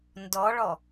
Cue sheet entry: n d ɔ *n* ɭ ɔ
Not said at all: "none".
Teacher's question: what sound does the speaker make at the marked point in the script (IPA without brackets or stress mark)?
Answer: none